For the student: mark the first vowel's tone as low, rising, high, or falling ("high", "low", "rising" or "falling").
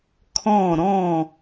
falling